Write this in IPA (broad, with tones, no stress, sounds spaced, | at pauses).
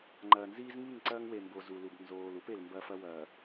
ŋ͡ǃ ɐː˨ n z iː˦ z ŋ i˦˨ ŋ ǀ ɐː˦ ŋ w e˨ m b o˨ z u˨ l u˨ b n z oː˨ l u˦ p e˨ l m b ɐ˨ f ɐ˦ w ɐː˨